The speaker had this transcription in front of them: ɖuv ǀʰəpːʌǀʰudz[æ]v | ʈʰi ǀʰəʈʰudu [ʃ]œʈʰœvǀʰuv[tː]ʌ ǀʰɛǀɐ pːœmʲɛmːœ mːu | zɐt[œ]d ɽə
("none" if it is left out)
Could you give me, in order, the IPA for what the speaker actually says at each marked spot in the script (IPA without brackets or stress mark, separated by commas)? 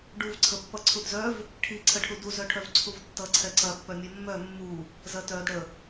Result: œ, z, tː, œ